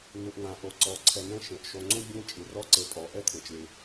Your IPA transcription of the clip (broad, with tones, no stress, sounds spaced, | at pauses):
n̪ u˩ ʔ ŋ ã˩ ʔ o˩ ǀ ɔ˩ ǀʰ ɛ˨ n ɛ̃˥ ʃ ẽ˩ ʔ ʃ o˨ ŋ͡ǀ ũ˥ bʲ ɛ̃˥ t͡ʃʼ ɨ˩ r ɔ˥ ǀ e˨ pʼ ɔ˩ ʔ ɛ˥ t̪ʰ ẽ˩ t͡ʃ l ɨ˩